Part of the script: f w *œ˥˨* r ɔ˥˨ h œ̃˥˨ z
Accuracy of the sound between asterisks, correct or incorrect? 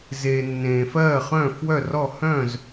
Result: correct